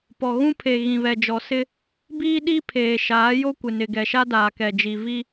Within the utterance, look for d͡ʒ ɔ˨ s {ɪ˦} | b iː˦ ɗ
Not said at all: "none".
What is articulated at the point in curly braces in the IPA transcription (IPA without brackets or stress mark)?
ɪ˦